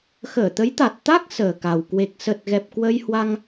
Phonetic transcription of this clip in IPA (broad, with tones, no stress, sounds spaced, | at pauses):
x əː˧˩ t̪ ə˨˦ j t̪ a˨˩ t̚ t̪ a˦˥ k̚ s əː˨˩ k a˨˩ w k w e˨˩ k̚ s ə˨˩ t̚ ɣ ɛ˨˩ p̚ k w ə˧ j h w a˧ ŋ